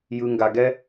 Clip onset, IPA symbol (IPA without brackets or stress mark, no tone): j